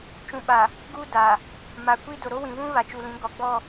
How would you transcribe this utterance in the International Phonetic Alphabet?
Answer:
t͡ʃũ˨ɓa˨ | ɡu˦da˨ | ma˨kʷi˦ do˨ɾo˦wĩ˨βũ˦ βa˨t͡ʃu˨lĩ˨˦ ɡɔ˨ɡ͡bɔ˦˨

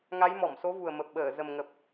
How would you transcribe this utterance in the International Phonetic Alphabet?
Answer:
ŋa˨˦j mɔ˧˩mso˨˦vu˨˩ə̯ mə˨˩p̚ɓəː˧˩ zə˨˩mŋə˨˩p̚

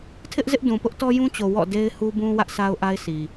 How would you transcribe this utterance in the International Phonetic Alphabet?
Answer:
tʰɪ˦ʔzɪ˦ʔdũ˨ pʊ˦ʔtɔ˦jũ˦t͡ɕo˨ wɔ̰˦˨ de˦ɪ̯hu˦bũ˦ wä˦ʔsʰa˦ʊ̯ʔa˦ɪ̯ sʰi˨

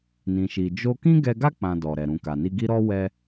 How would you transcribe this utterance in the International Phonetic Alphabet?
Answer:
nĩ˦ʃi˦ d͡ʒo˦ kĩ˦ɡɛ˧ɡa˦ k͡pã˧dɔ˨ɾɛ˨ ɾũ˨ka˨ni˧ɡi˦ ɾɔ˦ wɛ˧

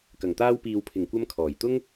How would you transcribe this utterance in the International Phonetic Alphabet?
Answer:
kɐ˨˩ŋ t̪aː˧wpiː˨wpʰɪ˨˩ŋkʷɐ˧m kʰɔː˨˩jt̪ʊ˥ŋ

